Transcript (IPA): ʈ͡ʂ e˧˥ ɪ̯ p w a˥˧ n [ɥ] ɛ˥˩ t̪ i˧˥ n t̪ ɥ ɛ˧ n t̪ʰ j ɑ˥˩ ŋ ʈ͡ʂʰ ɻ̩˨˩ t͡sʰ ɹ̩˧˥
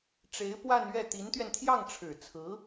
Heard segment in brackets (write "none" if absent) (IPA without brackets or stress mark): ɥ